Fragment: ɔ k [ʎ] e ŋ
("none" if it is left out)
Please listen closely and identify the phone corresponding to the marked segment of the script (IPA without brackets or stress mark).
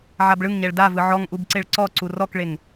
ɭ